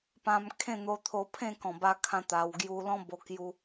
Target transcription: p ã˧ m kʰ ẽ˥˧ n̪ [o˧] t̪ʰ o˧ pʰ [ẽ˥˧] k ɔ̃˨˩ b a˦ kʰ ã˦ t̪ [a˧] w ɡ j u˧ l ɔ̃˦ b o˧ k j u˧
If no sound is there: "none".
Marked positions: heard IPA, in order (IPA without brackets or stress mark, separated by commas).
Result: o˧, ẽ˥˧, a˧